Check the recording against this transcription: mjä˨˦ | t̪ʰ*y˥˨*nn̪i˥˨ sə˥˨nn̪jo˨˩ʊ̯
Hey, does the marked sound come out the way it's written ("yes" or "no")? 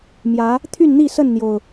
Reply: yes